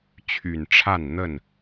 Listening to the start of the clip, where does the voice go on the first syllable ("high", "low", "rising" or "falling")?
low